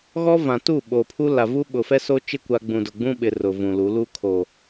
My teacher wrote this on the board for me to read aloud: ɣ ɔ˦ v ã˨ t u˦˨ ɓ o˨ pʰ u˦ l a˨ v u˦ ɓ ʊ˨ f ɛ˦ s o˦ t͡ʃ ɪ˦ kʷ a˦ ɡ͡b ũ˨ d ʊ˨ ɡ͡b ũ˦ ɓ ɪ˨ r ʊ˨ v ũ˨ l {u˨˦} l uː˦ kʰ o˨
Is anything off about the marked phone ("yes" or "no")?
no